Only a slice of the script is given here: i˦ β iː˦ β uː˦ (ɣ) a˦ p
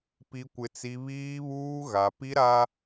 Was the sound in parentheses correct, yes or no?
yes